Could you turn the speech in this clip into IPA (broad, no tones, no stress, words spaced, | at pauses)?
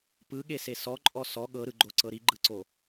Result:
pɯɠese sɔǃʼɔ sɔ ɠɤɾɯɡ͡ǃoǀɤ ɾiɡ͡ǃɯǀo